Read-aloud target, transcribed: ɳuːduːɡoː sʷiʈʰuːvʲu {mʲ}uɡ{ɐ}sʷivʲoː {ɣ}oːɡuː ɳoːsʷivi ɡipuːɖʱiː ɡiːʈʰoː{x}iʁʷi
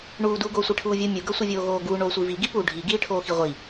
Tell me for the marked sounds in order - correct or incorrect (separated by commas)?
correct, incorrect, correct, correct